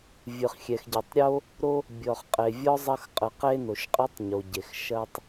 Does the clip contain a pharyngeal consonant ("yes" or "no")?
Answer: no